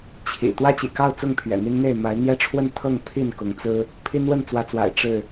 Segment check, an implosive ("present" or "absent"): absent